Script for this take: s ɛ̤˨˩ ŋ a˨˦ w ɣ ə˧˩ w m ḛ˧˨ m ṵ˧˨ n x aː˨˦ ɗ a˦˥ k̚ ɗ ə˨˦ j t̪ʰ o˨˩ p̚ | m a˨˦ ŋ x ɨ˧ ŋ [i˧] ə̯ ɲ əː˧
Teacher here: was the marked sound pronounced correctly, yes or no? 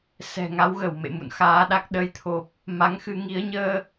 no